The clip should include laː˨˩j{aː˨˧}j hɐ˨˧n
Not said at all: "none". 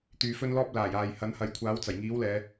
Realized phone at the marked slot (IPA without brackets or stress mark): aː˨